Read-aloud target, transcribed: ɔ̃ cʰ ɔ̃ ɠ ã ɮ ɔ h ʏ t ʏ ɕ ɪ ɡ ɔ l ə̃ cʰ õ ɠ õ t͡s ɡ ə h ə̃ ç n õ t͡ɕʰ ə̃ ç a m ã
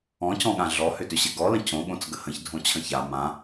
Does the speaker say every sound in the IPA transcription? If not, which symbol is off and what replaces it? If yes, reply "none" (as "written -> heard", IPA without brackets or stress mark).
n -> dʱ